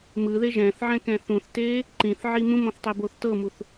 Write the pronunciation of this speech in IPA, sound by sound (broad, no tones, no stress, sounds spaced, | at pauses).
m ɯ ð e ʒ ɛ̃ θ ʕ ɛ̃ k ɛ̃ θ ũ θ t eː | ǃ ĩ θ ʕ i m ũ m ɔ̃ θ tˤ i b oː θ t ɤ m u θ